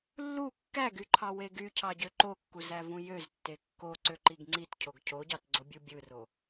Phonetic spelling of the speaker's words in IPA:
lː u kː æ ɡ y ǃʰ ɑ w e ɡ y cʰ ɑ ɟ ø ǃ o kː u z æ v ũ j ø z tː e kː o ǀ ø ǃ i ɡ ŋ͡ǀ i t cʰ o ɡ cʰ o ɟ ɑ t ɡ͡ǀ o bʲ u bʲ ɯ r o

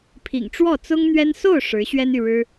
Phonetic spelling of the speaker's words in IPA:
pʰ ḭ˨˩ ŋ ʈ͡ʂ w ɔ˥˩ t͡s ʊ˥ ŋ n̪ ɥ ɛ˥ n s o˥˩ ʊ̯ ʂ ɻ̩˧˥ ɕ ɥ ɛ˥ n y˨ ɻ ɻ̩˥

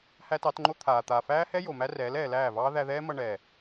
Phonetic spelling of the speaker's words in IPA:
h æ˦ t ɑ˨˦ t ŋ͡ǃ o˦ t̪ʰ aː˨ t̪ aː˨ f æː˦ h ɛ˦ j o˨ m æ˦ r ɛː˨˦ l ɛː˨ l æː˦˨ v ɑː˦ ð æ˧ ð ɛː˦ m ʌ˧ ɳ ɛː˨

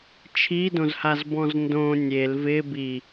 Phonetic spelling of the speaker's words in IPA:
t͡ʃʰ i d õ z h a z b ɔ̃ z n d õ nʲ e l v ɪ b i

